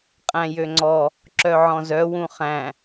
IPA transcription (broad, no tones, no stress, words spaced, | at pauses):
qʼæ̃jøŋ͡ǀɔ | ǁœʕɔ̃zœ wũχæ̃